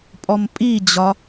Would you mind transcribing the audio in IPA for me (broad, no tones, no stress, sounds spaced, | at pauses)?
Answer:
pʼ ɔ m pʼ i d͡ʑ ɒ